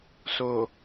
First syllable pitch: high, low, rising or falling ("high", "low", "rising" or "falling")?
low